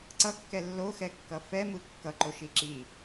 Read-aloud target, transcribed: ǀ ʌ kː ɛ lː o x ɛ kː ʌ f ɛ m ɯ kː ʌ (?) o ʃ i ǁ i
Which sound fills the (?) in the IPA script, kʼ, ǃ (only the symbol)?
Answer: ǃ